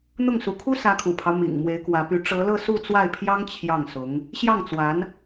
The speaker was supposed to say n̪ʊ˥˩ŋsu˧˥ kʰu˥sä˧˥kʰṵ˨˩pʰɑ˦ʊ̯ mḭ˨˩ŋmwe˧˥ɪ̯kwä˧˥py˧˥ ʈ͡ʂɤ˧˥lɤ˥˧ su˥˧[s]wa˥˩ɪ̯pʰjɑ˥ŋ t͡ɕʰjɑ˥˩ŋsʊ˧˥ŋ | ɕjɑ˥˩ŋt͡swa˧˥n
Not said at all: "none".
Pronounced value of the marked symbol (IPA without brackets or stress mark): t͡s